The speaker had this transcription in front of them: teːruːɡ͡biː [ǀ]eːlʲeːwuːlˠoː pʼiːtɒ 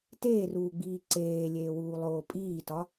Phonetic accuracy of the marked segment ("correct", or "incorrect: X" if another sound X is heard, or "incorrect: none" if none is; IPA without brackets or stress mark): correct